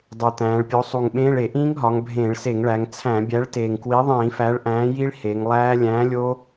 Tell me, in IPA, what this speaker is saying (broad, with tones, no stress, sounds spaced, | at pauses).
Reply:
dˤ e˨˩ t̪ æ̃ː˩˧ ɭ pʲ o˨˥ sˤ u˨˩ ŋ ɓ ẽː˧˥˧ ɭ e˧˩˧ ʔ ĩː˦˥ ŋ ɦ ɒ˩˧ ŋ bʱ ẽː˧˩˧ ɭ s e˧˩˧ ŋ ɭ æ˩˧ ŋ t͡sʰ æ̃˧˩˧ bʲ æ˨˥ ɭ t eː˨˩ ŋ k w i˨˥ ðˤ ĩː˧˩˧ f æ˨˥ ɭ ʔ æ̃ː˨˥ j i˦˥ ɭ h e˩˧ ŋ lˠ æː˦˥ lʲ æ̃ː˨˥ lʲ oː˦˥